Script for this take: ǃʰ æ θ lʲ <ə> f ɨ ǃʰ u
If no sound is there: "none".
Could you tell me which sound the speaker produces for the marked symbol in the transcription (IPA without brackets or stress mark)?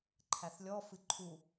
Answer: ɔ